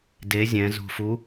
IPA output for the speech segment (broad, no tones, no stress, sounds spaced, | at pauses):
d e zʲ ɛ̃ z o̤ f u